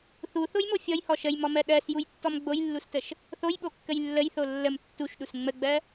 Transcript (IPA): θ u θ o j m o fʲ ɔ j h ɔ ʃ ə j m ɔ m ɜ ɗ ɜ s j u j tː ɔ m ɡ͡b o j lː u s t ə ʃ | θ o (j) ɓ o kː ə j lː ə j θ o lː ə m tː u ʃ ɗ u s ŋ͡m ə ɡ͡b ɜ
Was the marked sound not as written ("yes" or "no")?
no